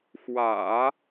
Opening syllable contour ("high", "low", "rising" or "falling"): low